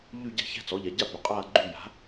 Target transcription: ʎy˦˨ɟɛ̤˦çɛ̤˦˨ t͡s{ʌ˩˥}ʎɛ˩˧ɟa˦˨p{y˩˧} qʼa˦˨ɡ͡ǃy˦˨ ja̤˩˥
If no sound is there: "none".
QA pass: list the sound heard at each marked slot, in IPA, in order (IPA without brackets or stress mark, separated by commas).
ɔ˩˥, y˩˧